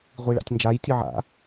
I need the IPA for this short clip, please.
ʁʷ i ɭ a̰ tʲ n d͡ʒ a j tʲ ɨ ʕ a̰

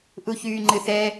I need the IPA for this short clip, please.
ʔ u ç yː ŋ͡ǃ ɨ θ ɛ

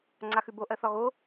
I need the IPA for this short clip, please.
ŋ͡ǀ a x ʉ b o ʔ ɜ θ ɒ ɣ o

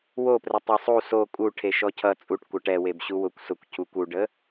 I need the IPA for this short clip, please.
w o p r ɛ tˤ ɛ sˤ u s o kʼ u ʈʰ e ʃ ɔ cʰ ʌ t͡sʼ u ʈ kʷ ʌ ʈ ɛ w e b ɕ u w ʊ kʷ s ʊ kʷ cʰ u kʷ u ɖ ə

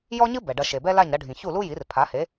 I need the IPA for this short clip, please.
j ɔ˥ ɲ ɨ˥ b ɛ˩ ɖ ɐ˧ ʃ e˩ b ɛ˥ l a˥˩ ɲ ɾ ɐ˧ ɖʱ ĩ˩ ç u˥˩ l u˥ j i˩˥ r pʰ a˩˥ h e˩˥

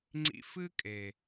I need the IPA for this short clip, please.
ŋ͡ǀ ḭ˧ f ɨ˦ kʼ e˨

